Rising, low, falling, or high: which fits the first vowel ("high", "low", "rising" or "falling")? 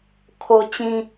high